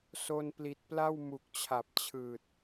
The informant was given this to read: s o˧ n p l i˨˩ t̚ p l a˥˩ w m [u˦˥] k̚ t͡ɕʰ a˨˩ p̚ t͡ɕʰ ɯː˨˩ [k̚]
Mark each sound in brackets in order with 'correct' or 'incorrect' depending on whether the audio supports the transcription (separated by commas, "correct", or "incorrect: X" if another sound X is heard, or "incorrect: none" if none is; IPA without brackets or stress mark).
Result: incorrect: u˨˩, incorrect: t̚